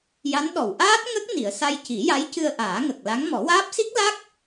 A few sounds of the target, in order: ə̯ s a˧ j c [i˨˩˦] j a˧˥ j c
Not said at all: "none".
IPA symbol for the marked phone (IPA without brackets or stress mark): i˨˩˦